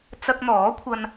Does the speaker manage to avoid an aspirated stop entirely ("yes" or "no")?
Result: no